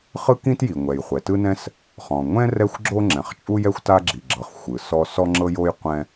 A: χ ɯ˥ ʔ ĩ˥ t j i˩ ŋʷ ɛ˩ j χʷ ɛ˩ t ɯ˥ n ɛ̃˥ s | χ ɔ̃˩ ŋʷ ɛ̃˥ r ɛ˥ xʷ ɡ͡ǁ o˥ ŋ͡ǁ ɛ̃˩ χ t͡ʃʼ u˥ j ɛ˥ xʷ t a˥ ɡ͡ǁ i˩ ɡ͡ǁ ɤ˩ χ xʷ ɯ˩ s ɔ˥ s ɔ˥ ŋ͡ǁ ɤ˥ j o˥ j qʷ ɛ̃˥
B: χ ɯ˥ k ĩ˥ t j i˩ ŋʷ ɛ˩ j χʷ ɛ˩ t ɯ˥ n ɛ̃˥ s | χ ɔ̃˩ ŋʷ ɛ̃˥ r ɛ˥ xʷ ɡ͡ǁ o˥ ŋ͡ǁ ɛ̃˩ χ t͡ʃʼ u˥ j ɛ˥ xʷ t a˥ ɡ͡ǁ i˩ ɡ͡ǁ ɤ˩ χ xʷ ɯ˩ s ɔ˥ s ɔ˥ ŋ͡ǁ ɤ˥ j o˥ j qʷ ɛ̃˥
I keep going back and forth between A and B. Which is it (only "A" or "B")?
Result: B